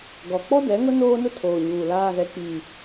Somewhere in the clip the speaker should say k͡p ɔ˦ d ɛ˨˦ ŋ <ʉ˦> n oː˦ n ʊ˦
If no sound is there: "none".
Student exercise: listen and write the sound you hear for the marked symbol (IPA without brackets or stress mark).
ʊ˦